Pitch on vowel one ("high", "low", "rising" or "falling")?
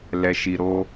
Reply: low